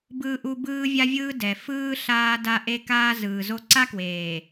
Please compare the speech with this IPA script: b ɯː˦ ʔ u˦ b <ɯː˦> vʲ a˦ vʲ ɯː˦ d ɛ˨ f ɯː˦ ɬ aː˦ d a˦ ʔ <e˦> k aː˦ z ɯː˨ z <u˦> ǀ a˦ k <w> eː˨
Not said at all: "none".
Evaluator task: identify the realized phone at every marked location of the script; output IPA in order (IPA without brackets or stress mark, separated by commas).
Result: ɯː˦, e˦, o˦, w